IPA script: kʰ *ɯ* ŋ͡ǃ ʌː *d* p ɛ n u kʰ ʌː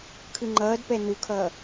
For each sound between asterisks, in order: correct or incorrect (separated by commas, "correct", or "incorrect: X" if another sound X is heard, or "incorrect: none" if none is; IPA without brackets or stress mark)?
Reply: correct, correct